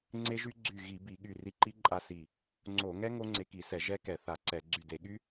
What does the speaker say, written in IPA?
ŋ͡ǀe˦˥ʒy˦˥ ɡ͡ǀy˧˩ ɣi˧˩˧bi˧˩˧ ɠy˧˩ri˧ǃi˦˥ ǃʼa˦˥si˧˩ | ŋ͡ǀo˧˩˧ ŋɛ˦˥ ŋo˦˥ŋ͡ǀe˧ki˧˩˧sɛ˧˩˧ ʒɛ˦˥kɛ˧˩˧ θa˧˩˧ǀɛ˧˩˧ ɡ͡ǀy˧˩de˧˩˧ɠy˦˥

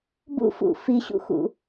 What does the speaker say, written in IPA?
bṵfṵ fiɕṵxṵ

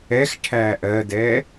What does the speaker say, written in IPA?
ɛxʈʰæː ʔɜdɛː

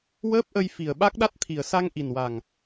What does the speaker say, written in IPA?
wəː˦˥p̚ʔə˧jfi˨˩ə̯ ɓa˦˥k̚ɗa˦˥t̚t̪ʰi˨˩ə̯ sa˧ŋ ʔi˨˩nwa˨˩ŋ

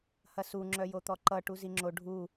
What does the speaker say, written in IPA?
hɐsu ŋ͡ǁœjot̪ɔǃʌ ʈuziŋ͡ǁo ɖʱu

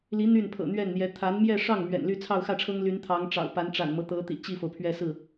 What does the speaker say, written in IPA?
li˧˥ n̪y˥˩npʰɤ̰˨˩n̪ɥɛ˥˩n n̪jɛ˧˥ t̪ʰa˧˥nmjɛ˥˧ʂɑ˥˩ŋ mɥɛ̰˨˩nly˥˧ t͡sʰɑ˥˧ʊ̯xä˥˩ʈ͡ʂʰɤ˥ŋly˧˥n t̪ʰɑ˧˥ŋʈ͡ʂɑ̰˨˩ʊ̯ pa˧˥nʈ͡ʂa̰˨˩nmɤ˦ t̪ɤ˧˥t̪ḭ˨˩ t͡ɕi˥˩fo˩ʊ̯pʰɥɛ˥˧sɹ̩˥˩

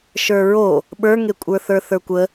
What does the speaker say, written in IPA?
ʃə˞ɹo | ɓə˞ŋekʷʼə˞θə˞ θə˞kʷə

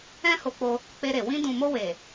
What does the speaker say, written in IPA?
ɛ̃˦ ho˧k͡po˧ | k͡pe˧ɾe˨ wĩ˧dũ˨mo˧ we˨

